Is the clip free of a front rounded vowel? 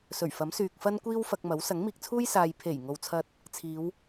no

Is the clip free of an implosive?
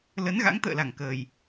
yes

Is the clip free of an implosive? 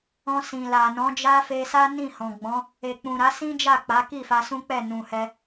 yes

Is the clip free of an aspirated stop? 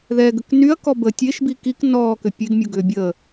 yes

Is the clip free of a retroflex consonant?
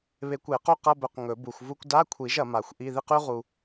yes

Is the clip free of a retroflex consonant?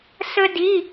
yes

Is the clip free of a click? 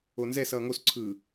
no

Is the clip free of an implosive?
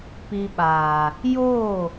no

